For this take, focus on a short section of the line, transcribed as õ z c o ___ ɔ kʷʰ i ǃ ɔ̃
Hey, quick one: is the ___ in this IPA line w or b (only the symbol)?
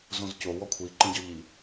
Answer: w